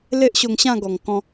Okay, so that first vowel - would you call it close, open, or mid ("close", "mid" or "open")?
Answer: mid